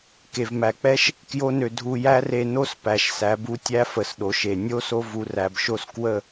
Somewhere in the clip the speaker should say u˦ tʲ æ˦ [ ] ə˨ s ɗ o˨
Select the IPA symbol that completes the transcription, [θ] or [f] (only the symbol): f